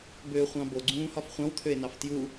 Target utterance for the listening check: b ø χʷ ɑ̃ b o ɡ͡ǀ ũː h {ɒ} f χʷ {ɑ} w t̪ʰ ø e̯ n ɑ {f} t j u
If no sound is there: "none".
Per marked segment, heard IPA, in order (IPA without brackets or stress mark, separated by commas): ɒ, ɑ̃, f